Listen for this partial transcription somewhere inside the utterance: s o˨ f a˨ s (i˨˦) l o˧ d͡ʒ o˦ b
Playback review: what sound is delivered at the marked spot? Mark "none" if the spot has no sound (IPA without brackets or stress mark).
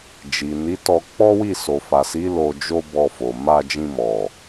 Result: i˨˦